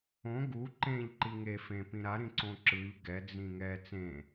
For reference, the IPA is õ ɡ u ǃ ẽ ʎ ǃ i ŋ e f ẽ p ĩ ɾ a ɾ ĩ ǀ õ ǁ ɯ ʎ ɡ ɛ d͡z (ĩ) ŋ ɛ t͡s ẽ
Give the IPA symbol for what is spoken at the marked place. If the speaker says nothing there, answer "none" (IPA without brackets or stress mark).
ĩ